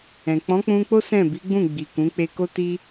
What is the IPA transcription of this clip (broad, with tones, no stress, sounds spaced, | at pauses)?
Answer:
ɛ̃˨ k͡p ɔ̃˨˦ k͡p ũ˧ k͡p o˦ s ɛ̃˦˨ b i˨˦ ɡ͡b ũ˦˨ ɡ͡b i˨ k ũ˨˦ k͡p e˧ k o˦ t i˦